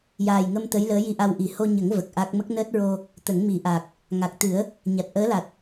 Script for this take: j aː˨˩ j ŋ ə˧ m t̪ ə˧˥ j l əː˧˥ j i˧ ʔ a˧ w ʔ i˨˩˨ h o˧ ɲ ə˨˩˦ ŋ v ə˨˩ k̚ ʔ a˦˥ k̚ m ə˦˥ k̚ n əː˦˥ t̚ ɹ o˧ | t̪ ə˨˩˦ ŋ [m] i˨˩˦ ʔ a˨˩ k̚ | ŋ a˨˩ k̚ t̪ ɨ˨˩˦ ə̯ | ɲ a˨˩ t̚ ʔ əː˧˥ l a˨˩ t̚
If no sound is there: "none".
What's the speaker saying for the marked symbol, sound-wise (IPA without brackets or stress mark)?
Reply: m